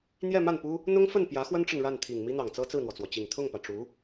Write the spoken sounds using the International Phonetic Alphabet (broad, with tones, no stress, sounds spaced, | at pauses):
n̪ j ɛ˥˧ m a˥˩ n p u˥ | n̪ ʊ˥ ŋ f ə˥˩ n p j ä˧˥ x w ə˥ n ʈ͡ʂ ə˨ n ɻ a˥˩ n t̪ʰ i˨˩ ŋ m i˥ n̪ ɑ˨˩ ŋ t͡s ɤ˥ t͡s ɹ̩˥˩ n̪ w ɔ˩ t͡s w ɔ˩ t͡ɕ i˨˩ ŋ t̪ʰ ʊ˥˩ ŋ p ä˩ ʈ͡ʂ u˧˥